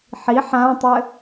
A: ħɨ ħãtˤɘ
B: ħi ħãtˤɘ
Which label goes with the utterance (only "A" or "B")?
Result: B